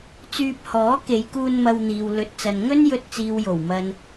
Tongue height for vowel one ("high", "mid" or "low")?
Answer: high